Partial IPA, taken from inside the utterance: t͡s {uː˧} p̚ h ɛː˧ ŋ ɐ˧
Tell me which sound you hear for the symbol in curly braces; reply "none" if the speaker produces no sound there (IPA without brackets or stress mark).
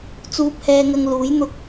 uː˧